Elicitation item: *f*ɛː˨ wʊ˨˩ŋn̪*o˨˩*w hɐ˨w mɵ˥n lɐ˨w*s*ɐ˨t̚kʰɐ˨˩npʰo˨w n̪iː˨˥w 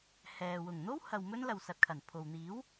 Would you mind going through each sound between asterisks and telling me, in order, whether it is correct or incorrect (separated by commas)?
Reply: incorrect, incorrect, correct